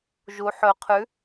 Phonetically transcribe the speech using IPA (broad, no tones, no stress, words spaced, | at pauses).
ʒu ħɵ qʰʉ